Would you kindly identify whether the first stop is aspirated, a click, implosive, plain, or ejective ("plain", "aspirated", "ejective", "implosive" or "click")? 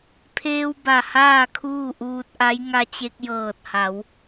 aspirated